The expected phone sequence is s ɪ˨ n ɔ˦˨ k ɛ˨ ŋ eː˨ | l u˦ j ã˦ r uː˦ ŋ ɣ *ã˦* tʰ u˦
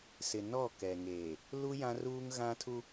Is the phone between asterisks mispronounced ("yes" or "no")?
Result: no